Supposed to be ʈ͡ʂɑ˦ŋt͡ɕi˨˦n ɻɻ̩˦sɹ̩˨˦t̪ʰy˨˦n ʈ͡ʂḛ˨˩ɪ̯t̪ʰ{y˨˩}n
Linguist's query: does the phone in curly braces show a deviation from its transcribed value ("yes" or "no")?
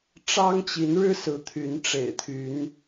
yes